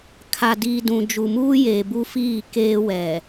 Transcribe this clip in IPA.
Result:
kʰ a˨ d iː˨ d ũ˨ d͡ʒ u˨ m uː˦ j eː˨ b u˦ f iː˦˨ k eː˦ w ɛ˨

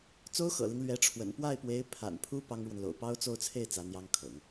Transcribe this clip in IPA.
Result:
t͡s o˥ ʊ̯ x ɤ̰˨˩ l i˦ ŋ l ɥ ɛ˧˥ ʈ͡ʂʰ w ə̰˨˩ n p w a˥˩ ɪ̯ p w e˧˥ ɪ̯ pʰ a̰˨˩ n pʰ u˥ p ɑ˥ ŋ ɻ w ə˨ n l o̰˨˩ ʊ̯ p ɑ˥ ʊ̯ t͡s o˥˧ ʊ̯ t͡sʰ e˥˩ ɪ̯ t͡s ä˧˥ n̪ j ɑ˥ ŋ kʰ ɤ̰˨˩˦ ŋ

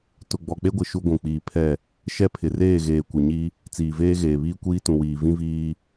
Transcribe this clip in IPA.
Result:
t ʊ˨ ɡ͡b ɔ˨ k͡p e˦ ɡʷ ɪ˨ ʃ u˦ ɡʷ ũ˨ k͡p iː˨ pʰ ɛ˦˨ | ʃ ɛ˦ pʰ ɪ˨ r eː˦˨ ɣ eː˨ kʷ ɪ˨ ɲ i˦ | t͡s iː˨ v eː˦ ɣ eː˨ β iː˦ kʷ iː˦ t ũ˨ w iː˨ v ĩ˦ v iː˦

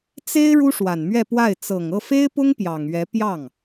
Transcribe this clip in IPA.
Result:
t͡s e˥ ɪ̯ ɻ u˥ ʂ w a˨˩ n m ɥ ɛ˥˧ p w a˥˩ ɪ̯ t͡s ɤ˨˩ ŋ ɤ˥˩ f e˥ ɪ̯ p ʊ˥ ŋ p j ɑ˨˩ ŋ ɥ ɛ˧˥ p j ɑ˥˩ ŋ

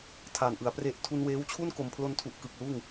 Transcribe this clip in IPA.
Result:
tʰ aː˨˩ n ʔ ɯ˩˦ a̯ p r e˦˥ ʔ tʰ u˧ n w eː˦˥ w t͡ɕʰ u˥˩ n k o˨˩ m pʰ l o˧ n tʰ u˨˩ ʔ k ɯ˨˩ k̚ l uː˥˩ ŋ

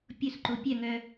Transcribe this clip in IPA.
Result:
pʲ ʊ s ǃ o pʲ œ ŋ œ

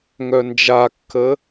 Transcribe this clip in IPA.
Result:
ŋ œ n d͡ʒ a kː ə

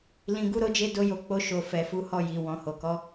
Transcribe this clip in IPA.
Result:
l ĩ˨ ɡ u˨˦ ɾ o˧ d͡ʒ e˧ d o˧ j o˧ k͡p o˧ ʃ o˨ f ɛ˨ f u˨˦ h ɔ˦˨ j i˨ w ɔ̃˨ h o˨ k ɔ˨˦

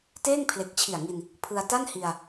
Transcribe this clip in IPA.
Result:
t eː˥˩ ŋ pʰ l e˨˩ k̚ t͡ɕʰ i˨˩ a̯ ŋ i˧ n | pʰ ɯ˧ a̯ t a˥˩ n h i˧ a̯

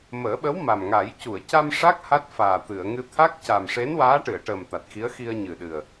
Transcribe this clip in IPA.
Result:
m əː˨˩˦ ɓ ə˧˥ w m a˨˩ m ŋ a˨˩˦ j c u˨˩˨ ə̯ c a˧ m ʂ a˦˥ k̚ h a˦˥ t̚ f aː˨˩ t̪ ɨ˨˩˨ ə̯ ŋ ɨ˧ t̪ʰ a˦˥ k̚ c a˨˩ m ʂ e˧˥ n w aː˧˥ ʈ ɨ˨˩˨ ə̯ ʈ əː˨˩ m t̪ a˨˩ t̚ x i˧˥ ə̯ x i˧ ə̯ ɲ ɨ˨˩ ɗ ɨ˨˩ ə̯

